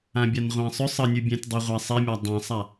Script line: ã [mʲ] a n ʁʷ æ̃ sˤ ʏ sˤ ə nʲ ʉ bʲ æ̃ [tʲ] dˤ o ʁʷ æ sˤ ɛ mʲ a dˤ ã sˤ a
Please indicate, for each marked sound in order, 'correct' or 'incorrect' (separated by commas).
incorrect, correct